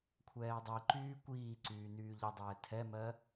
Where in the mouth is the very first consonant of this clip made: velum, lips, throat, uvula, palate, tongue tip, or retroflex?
velum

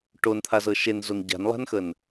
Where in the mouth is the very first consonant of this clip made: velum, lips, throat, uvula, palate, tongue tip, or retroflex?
retroflex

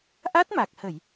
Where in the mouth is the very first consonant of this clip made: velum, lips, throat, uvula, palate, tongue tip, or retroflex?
throat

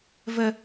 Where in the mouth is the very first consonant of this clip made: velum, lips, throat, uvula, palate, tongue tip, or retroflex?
lips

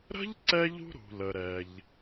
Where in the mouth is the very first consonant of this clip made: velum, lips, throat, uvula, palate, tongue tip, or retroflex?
tongue tip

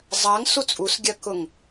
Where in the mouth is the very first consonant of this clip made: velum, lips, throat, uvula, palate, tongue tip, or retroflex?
tongue tip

